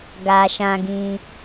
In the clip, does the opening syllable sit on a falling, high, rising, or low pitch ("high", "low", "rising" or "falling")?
low